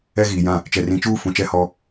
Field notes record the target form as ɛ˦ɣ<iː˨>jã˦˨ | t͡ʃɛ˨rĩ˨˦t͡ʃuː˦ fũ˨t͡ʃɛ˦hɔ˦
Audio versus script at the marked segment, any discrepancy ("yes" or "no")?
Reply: no